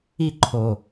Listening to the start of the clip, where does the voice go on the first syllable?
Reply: high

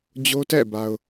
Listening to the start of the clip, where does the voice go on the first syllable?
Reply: high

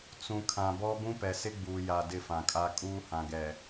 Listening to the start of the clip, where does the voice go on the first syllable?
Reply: low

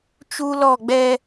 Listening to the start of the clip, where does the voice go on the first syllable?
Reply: high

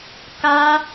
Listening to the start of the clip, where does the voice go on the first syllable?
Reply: high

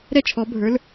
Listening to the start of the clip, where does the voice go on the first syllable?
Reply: high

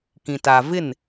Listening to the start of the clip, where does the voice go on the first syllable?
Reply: low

